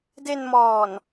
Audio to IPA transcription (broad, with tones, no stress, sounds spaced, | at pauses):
d e˧ n m ɔː˨˩ n